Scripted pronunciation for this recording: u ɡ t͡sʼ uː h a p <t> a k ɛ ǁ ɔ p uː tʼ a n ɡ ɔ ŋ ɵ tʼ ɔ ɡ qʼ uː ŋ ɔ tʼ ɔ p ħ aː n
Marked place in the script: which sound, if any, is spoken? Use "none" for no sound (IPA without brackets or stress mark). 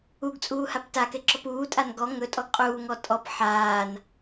t